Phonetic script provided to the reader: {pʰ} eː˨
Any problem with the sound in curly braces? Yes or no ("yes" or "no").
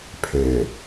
no